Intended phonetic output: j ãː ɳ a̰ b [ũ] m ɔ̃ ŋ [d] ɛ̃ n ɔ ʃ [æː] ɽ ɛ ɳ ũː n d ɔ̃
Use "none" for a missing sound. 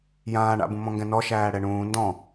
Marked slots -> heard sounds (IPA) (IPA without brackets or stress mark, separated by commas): ũ, ɡ, æː